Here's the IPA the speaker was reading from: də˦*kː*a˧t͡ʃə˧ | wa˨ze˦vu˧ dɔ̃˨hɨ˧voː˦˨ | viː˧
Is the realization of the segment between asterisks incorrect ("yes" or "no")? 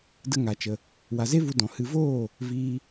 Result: yes